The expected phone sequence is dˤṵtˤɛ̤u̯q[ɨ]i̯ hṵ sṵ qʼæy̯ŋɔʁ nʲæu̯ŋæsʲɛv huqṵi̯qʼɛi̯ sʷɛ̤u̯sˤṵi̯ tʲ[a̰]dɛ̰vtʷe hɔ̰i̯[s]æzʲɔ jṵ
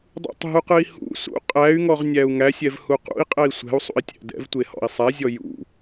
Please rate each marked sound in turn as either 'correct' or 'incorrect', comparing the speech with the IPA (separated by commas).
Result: correct, incorrect, incorrect